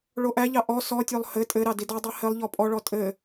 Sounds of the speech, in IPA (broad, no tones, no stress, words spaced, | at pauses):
ɭoʔæʎɑ ʔɔ sɔtʲolˠ hɘ tʼɘɾɑ didɔdˤæ hɘlˠʎɔ pʼɔɭɔ tʼɘ